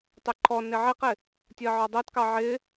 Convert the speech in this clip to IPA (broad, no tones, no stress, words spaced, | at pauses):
tˤɛǃʰɔnɪ ʕiqɪ | tʲɜʕɒdˤɛtkɑ ʕɪ